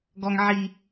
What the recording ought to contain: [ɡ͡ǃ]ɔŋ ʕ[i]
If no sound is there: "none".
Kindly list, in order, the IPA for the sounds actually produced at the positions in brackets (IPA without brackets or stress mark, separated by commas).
ɡ, i